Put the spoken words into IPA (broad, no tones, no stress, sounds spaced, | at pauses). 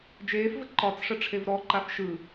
d͡ʒ eː f v ə ǃ ɒ t͡s ʂ ə ʈ͡ʂʰ e v ɾ ɔ ǃ a f ʃ ɯ